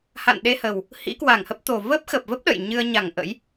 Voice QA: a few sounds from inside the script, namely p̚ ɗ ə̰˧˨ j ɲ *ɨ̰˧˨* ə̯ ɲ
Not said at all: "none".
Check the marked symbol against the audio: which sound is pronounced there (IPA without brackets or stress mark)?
ɨ˧